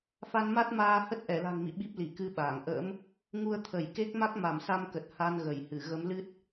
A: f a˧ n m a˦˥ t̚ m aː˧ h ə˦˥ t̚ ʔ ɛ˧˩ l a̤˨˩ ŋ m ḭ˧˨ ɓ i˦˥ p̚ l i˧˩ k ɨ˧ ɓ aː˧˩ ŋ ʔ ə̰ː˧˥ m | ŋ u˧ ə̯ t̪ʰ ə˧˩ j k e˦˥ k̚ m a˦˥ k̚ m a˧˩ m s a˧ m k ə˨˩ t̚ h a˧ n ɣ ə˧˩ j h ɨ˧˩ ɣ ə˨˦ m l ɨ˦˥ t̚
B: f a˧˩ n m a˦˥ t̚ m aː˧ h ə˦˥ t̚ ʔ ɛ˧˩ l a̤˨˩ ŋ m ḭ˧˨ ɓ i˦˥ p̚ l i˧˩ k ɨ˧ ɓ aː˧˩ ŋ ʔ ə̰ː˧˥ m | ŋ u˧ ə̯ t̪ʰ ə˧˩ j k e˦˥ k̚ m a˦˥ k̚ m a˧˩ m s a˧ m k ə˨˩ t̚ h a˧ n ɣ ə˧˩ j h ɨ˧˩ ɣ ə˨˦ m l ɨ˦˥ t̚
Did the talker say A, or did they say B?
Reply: A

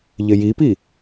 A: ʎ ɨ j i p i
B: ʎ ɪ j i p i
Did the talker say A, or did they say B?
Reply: B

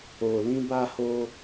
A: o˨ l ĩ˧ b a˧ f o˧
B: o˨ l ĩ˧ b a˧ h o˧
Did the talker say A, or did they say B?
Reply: B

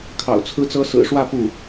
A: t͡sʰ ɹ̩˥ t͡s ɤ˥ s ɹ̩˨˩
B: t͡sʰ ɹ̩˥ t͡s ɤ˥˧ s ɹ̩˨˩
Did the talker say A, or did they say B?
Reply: A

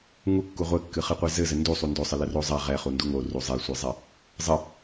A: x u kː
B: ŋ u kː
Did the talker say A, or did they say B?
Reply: B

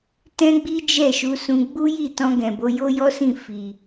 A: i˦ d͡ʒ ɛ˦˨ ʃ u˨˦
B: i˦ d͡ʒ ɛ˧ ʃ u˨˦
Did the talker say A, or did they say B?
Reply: A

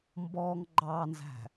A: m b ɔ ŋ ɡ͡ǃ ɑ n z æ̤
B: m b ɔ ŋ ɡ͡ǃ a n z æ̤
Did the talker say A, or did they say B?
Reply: A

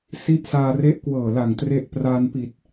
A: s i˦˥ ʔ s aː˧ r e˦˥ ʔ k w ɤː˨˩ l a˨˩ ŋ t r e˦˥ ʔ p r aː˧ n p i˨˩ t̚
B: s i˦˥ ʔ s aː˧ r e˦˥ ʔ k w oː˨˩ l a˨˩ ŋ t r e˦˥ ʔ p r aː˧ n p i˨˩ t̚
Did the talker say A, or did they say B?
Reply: A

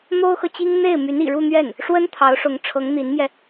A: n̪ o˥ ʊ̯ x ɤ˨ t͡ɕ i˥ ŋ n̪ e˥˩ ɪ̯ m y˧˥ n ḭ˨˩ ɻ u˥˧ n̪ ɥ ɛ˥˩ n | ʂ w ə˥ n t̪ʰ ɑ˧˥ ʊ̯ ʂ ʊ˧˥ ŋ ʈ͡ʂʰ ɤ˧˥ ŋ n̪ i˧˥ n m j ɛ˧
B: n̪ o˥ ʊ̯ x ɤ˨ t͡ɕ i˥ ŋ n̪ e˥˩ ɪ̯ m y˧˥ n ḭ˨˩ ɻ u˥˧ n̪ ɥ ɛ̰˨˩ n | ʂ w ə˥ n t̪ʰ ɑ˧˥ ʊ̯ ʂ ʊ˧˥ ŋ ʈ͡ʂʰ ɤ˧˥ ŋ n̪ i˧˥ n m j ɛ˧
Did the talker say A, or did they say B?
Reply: A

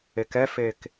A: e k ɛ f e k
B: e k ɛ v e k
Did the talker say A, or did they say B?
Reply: A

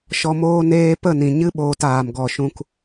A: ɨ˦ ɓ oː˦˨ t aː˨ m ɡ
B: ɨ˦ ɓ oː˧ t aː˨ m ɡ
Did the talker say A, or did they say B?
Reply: B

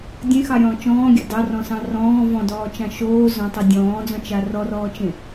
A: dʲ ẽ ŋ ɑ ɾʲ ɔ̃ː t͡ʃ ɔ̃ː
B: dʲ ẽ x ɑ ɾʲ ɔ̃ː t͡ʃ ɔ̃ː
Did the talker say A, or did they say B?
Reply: B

